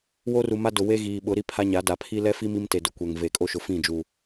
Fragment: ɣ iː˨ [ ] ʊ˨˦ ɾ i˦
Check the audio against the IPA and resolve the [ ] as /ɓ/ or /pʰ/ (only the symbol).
ɓ